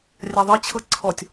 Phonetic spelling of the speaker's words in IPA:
rʲ a ðˤ ɤ t͡ɕʰ ɤ ǀʰ ɔ tʲ

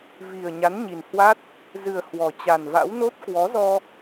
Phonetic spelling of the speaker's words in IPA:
v i˨˩ ə̯ ɲ a˨˦ n ɲ i˨˩ n h w a˦˥ t̚ | z ɨ˨˩ ə̯ h w ɔ˨˩ t͡ɕ a˨˩ n v a̰˧˥ w n o˦˥ t̚ k w ɔ˨˦ z ɔ˧

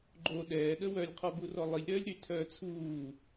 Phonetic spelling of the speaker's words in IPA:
ɡ͡ǃ o ɗ ɛː ɗ ə w œ lʲ qʰ ɔ b u r ɔ lˠ i lʲ ɾ œː lʲ ɾ y tʰ œː t͡sʰ uː

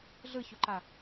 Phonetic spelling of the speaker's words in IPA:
ɮ ɯ ç o ǃ a

